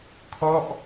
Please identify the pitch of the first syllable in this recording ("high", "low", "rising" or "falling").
falling